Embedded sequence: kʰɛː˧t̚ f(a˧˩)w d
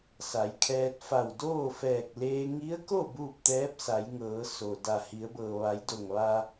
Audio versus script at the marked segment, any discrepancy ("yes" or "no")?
no